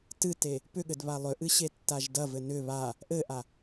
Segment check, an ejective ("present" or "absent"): absent